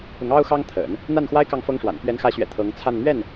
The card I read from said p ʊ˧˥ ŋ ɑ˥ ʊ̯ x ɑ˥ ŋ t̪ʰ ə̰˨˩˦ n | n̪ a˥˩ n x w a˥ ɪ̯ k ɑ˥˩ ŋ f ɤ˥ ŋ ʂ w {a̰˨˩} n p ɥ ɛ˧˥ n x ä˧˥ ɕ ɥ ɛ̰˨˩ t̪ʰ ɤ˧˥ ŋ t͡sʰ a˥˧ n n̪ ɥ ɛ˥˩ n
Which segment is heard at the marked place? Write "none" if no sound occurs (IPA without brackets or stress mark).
a̰˨˩